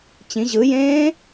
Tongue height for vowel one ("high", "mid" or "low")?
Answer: high